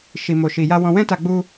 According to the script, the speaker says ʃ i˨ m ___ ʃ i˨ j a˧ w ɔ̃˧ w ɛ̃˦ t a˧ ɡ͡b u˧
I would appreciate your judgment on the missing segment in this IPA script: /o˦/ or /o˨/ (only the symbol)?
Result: o˨